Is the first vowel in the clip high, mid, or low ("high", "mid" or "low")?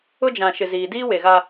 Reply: high